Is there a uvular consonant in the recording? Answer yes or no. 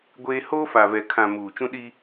no